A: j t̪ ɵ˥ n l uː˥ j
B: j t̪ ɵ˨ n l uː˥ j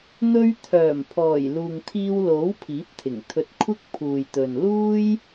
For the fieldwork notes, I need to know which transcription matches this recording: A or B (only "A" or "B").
B